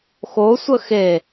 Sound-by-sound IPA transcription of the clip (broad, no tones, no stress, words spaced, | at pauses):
xo sʷəxe